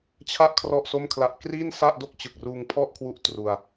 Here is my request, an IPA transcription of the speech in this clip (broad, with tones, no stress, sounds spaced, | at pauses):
t͡ɕʰ a˥˩ ʔ kʰ r ɔ˥˩ ʔ s o˥˩ m kʰ l a˦˥ ʔ k r iː˥˩ n s a˥˩ ʔ d o˥˩ k̚ t͡ɕ ɯ˨˩ k̚ r uː˧ ŋ pʰ ɔ˥˩ ʔ kʰ w u˦˥ ʔ t r u˧ a̯